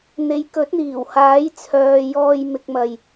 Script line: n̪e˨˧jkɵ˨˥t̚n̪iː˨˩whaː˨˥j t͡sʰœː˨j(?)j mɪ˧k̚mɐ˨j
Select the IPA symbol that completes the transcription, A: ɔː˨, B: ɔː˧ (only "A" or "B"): B